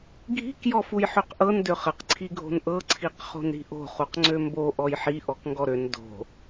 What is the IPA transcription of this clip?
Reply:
ɡʱi̤k jɔfujħøqʔɤn døχəq ǀʰiɡʱo̤nʔɤ ǀʰiqχo̤nɾi̤ʔo̤ χuqŋ͡ǀømbo ʔɔjħi ʔɔkŋɡɔɾøn do̤

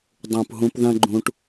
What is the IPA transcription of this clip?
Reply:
dˤũ˨p ɦũ˧pðɐ̃˦ ɡ͡ǃũ˧ʈ

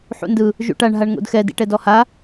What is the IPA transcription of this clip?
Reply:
ħṵndɯ | ʒṵʈaɳ ɦaɳŋo̰dxɛd ḭʈɛdɔha

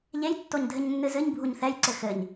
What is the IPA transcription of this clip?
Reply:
ʎejtːoɲdʱɘɲnːɨ zɨɲbʱuɲ θɛjǀɘ xɘɲ

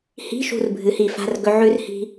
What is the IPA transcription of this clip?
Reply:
hi̤˧˥˧ ʃṳ˦˨r bʱɨ˩˧hi˧˩˧fa̤˧˥˧r ɡɵ˦˥ ʕʉ˦˥r hi̤˦˥

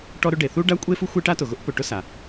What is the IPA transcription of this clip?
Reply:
ʈɔ˥ɾʊ˥ɖe˩ θu˥ɖa˥kʷʼe˥ fu˥xʷe˥ʈa˥tʊ˩ ɣʊ˥ʔpʊ˩ ʈʊ˥sa˩

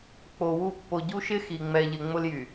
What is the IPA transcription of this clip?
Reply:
k͡po˨wu˦˨ pːo˨ɟu˦ʃɪ˦ xi˨ ŋ͡mɛ˨ʎɪ˨ ŋ͡mʊ˦ljy˨

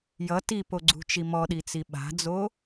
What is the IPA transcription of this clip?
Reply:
jʌ tipoɡ͡ǀṳt͡ʃi mɔɗit͡si ɓa̤d͡zo

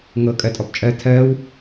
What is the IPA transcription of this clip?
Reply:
ŋɤ kʼɜtʼɔpt͡ʃʼɜ tʰɜːw

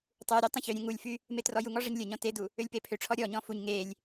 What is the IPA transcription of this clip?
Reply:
tˤuɾʲø tˤə̃çøɾʲẽ ŋulʲfy | metrɔjuŋɔ ʐəɲlʲə ɲɔ̃tedu | ølʲpepʰøʈ͡ʂʰɔ ɾʲɔɲɔ̃ fuɲ ŋelʲ

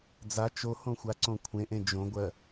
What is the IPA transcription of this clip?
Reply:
d͡za t͡ʃohõ xʷaǀõkʷʰẽʔẽ d͡ʒõɡʷɜ

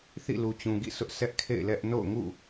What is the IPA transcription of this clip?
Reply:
θḭ˦˨lu˨t͡ɕũ˨ɡḭ˦˨ sʰʊ˦ʔ sʰɛ˦ʔkʰḛ˦˨ɪ̯ lɛ˦ʔ no̰˦˨ʊ̯ŋṵ˦˨

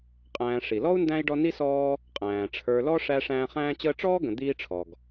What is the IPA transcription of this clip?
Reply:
qʼæ̃ː˨ʂi˩lɔ˥u̯ndæ̃˦i̯ ɖɔ˦ni˥sɔː˦ | qʼæ̃ː˩ʈ͡ʂʰə˞˨lɔ˦ ʂæ˦ʂæ̃ː˦χæ̃ː˥t͡ɕəː˥ ʈ͡ʂɔː˥ɡə̃˨ d̪iː˦ʈ͡ʂʰɔ˩ɡ

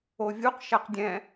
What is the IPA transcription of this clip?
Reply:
ovʲuq ʃaqdʲɛ̃

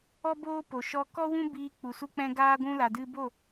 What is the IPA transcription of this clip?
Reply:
ɔ˦boː˦po˨ ʃɔ˧kɔ˦wũ˦biː˧ k͡pu˨su˧k͡pɛ̃˧ ɡaː˦ɡʷũ˦ la˧dɨ˦ bo˦˨

